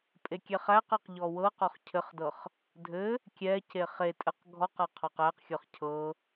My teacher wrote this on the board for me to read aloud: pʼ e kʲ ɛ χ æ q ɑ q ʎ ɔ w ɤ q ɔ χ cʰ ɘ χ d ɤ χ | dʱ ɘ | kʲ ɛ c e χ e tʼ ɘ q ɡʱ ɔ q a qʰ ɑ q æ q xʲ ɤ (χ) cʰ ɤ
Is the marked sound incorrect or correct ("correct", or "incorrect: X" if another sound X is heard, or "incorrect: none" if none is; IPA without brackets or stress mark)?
correct